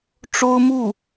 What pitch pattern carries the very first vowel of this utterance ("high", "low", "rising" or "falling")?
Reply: high